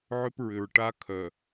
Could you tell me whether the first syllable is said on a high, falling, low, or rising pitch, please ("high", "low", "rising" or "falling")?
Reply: high